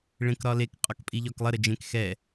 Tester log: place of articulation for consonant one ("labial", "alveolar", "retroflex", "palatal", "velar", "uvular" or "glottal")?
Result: retroflex